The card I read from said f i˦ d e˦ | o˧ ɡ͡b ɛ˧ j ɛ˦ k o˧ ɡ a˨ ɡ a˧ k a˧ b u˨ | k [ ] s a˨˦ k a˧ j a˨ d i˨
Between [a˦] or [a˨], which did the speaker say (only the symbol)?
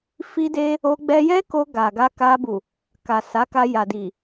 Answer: a˨